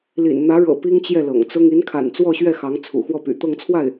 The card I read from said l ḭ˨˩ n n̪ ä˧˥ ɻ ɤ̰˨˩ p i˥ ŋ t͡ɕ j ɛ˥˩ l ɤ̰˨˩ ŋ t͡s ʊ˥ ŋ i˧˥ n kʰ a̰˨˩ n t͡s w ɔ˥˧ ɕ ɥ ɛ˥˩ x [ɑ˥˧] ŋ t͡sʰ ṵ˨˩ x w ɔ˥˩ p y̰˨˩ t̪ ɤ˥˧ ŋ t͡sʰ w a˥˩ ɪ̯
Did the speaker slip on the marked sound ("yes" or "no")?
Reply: yes